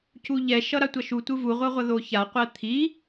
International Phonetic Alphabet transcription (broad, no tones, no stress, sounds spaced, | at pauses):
c u ʎ ɛ ʃ ʌ ɾ a tʷ ʌ ʃ u tʷ ɯ v u ʁʷ ʌ ʁʷ ʌ ð o ç a qʷ ɛ t̪ʰ i